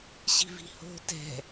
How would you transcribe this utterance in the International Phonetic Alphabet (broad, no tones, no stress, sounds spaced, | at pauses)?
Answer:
ɕ i̤ v i̤ h o̤ t ɛ̤